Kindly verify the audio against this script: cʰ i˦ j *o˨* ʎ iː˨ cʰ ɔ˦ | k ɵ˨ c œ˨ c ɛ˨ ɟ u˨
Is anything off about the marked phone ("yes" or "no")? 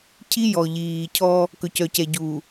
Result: yes